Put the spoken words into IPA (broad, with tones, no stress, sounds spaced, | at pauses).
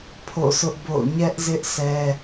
pʰ o̰˦˨ sʰ ʊ˦ ʔ b o̰˦˨ ʊ̯ ɲ ɛ˦ ʔ z ɪ˦ ʔ sʰ ɛ˦